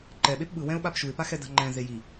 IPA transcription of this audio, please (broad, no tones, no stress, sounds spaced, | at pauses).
ǃ ɛ ɓ e p ɓ ɯ w ɛ̃ ʊ̯ ɓ a p ʃ u ɪ̯ p a x ɛ d a̤ ŋ͡ǃ ɛ̃ z e j i